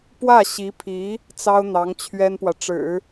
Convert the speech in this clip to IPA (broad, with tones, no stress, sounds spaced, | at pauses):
p w ä˥˩ ɕ i˧˥ pʰ i˧˥ | t͡s ɑ˥ ʊ̯ n̪ ɑ˧˥ ŋ t͡ɕʰ ɥ ɛ˥ n p w ä˨ ʈ͡ʂ ɻ̩˨˩˦